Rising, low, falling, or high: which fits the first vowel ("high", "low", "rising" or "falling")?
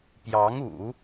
rising